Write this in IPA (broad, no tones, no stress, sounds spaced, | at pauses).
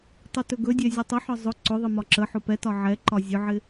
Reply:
tˤ ʊ t ɵ ɡ ɵ dʲ ɛ zʲ ɵ tˤ ɪ ħ ɒ zˤ ʊ ǀ ʊ ðˤ ɪ m ɒ ǁ ə ħ ʊ p ɛ t ɒ ʕ ɛ ǃ ɒ zʲ ʊ ʕ ɪ